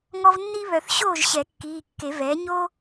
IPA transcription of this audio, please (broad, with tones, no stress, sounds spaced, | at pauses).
ŋ ɔ˧ v nː i˥ β œ˨˩˦ θ ɕ oː˥˨ ʒ ɕ ɛ˨˩˦ kː iː˩˧˩ kː e˨˩˦ v ɛː˩˥ ɲ o˥